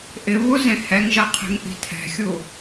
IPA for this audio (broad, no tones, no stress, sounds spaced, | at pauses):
ʔ ɪ β u z ẽ h ɛ ŋ ʒ ɐ qʰ e̤ ŋ ʔ i̤ tʰ ɛ̤ xʲ u